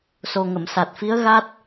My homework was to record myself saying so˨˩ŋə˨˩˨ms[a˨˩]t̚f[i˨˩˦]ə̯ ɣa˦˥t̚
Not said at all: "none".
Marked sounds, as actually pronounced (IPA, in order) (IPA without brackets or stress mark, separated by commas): a˨˩, i˧˥